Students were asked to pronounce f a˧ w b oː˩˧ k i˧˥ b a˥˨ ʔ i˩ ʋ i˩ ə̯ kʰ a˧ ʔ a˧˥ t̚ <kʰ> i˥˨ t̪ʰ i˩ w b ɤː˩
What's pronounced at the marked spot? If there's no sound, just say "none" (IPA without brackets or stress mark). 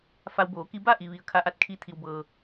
kʰ